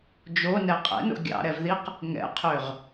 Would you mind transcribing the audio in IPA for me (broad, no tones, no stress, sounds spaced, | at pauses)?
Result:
d͡ʒ o n ɛ qʼ ɛ̰ n o̰ ɡʲ ɑ̰ ɾ ɛ v ð i q | ŋ ɛ̰ qʰ ø ʁ